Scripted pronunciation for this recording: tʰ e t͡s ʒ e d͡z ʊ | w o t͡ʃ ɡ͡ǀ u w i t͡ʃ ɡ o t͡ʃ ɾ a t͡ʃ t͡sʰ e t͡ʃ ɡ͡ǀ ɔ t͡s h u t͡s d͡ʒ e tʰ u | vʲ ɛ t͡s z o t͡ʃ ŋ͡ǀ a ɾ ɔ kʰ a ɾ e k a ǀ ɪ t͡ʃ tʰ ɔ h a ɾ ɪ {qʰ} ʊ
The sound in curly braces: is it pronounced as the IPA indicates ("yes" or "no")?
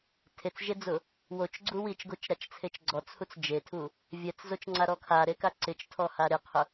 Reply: yes